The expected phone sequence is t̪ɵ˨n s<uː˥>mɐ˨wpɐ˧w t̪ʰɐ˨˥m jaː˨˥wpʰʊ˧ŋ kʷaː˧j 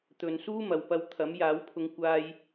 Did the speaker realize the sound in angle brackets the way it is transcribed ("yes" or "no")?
yes